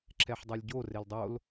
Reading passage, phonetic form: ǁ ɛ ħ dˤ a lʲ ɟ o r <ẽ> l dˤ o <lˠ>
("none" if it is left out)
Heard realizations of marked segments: e, l

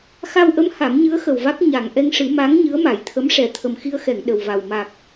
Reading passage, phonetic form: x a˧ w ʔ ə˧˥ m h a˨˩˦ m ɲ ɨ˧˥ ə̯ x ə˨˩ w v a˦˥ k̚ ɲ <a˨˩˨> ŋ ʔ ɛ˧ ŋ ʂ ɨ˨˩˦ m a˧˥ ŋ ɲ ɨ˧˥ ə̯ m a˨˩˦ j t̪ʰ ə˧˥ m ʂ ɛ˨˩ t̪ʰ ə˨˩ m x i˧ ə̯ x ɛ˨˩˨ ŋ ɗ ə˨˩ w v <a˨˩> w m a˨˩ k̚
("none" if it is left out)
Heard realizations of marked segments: a˨˩, a˨˩

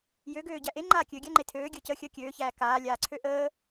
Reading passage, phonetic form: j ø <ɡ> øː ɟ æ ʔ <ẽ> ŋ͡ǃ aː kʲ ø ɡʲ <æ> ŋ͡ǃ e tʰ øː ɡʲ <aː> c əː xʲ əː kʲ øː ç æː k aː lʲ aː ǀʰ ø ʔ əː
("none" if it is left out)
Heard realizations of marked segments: ɡ, e, æ, əː

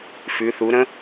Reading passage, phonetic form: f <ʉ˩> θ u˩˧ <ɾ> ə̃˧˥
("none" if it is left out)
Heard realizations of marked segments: ʉ˩˧, ɾ

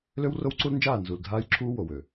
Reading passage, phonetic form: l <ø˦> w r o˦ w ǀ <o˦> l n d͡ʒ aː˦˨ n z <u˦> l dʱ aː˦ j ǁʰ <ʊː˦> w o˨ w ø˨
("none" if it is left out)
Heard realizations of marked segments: ø˦, u˦, u˨, uː˦

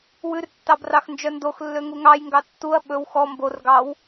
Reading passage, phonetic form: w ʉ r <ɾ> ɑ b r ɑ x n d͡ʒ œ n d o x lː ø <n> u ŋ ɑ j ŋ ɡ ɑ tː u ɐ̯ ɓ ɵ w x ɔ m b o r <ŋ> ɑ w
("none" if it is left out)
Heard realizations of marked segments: tː, ŋ, ɡ

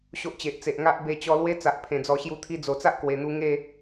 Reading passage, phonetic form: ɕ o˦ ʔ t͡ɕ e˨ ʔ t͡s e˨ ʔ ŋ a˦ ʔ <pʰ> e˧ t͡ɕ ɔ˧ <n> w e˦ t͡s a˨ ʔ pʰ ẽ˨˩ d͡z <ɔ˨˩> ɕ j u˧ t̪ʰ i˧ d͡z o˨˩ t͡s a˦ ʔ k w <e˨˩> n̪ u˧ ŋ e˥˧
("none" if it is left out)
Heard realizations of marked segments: b, l, ɔ˨˩, e˨˩

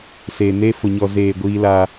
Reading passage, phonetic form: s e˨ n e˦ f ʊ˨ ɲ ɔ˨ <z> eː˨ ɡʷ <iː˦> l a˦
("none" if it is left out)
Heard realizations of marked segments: z, iː˦

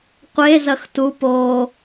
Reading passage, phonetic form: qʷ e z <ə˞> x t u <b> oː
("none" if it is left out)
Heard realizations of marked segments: ɐ, p

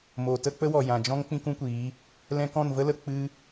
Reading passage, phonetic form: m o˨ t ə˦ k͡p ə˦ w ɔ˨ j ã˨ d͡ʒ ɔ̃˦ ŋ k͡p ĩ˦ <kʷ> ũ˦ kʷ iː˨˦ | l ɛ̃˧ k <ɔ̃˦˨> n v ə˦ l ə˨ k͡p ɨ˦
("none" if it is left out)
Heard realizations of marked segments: k, ɔ̃˦˨

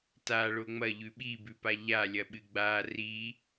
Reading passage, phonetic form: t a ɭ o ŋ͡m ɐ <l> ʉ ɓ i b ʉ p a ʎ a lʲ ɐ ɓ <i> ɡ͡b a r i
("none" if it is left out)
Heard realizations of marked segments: ʎ, ɨ

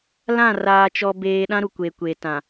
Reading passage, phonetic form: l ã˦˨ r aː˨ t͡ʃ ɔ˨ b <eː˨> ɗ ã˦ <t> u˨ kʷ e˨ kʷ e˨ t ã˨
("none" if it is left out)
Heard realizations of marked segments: eː˨, ɾ

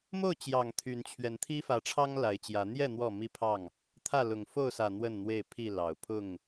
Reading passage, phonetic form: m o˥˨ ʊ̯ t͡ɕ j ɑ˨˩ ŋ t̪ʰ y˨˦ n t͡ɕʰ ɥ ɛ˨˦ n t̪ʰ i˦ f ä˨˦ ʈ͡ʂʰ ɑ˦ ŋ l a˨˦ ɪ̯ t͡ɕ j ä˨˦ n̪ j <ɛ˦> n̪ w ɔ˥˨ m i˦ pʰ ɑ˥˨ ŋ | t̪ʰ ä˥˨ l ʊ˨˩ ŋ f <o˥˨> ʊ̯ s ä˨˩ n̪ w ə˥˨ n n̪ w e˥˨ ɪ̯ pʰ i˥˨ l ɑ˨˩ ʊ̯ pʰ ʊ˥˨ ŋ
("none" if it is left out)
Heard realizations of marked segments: ɛ˥˨, o˥˨

